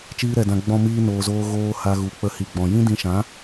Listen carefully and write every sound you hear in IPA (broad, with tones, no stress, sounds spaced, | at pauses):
t͡ʃ iː˧ ɾ ɛ˨ d ã˨ ɡ͡b ɔ̃˧ m iː˧ n oː˨ z oː˧ ɣ oː˧ h a˧ ɣ u˨ k͡p ə˧ h i˨ ɡ͡b ɔ̃˨ j ĩ˦ d ĩ˧ ʃ ã˨˦